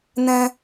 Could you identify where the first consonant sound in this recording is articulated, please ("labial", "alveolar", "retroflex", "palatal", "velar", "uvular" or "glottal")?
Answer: alveolar